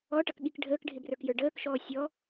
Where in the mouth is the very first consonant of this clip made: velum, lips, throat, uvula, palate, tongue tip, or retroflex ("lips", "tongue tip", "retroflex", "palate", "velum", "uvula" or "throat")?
retroflex